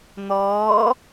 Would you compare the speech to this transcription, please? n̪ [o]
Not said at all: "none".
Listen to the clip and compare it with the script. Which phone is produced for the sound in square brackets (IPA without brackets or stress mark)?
ɔ